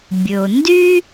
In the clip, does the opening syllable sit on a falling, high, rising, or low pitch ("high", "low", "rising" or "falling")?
low